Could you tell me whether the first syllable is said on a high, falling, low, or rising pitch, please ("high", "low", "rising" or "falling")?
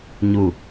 falling